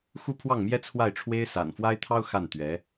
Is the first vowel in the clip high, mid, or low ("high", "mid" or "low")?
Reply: high